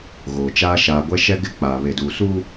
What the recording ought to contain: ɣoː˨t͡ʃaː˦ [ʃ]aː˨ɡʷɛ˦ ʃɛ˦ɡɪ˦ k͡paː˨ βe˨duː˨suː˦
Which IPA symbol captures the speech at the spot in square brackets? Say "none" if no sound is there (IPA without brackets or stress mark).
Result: ʃ